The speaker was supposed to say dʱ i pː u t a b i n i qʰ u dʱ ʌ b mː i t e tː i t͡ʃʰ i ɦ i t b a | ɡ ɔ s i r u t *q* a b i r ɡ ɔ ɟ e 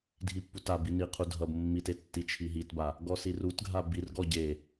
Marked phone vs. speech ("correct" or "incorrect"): incorrect